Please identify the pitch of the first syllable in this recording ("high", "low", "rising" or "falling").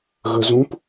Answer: low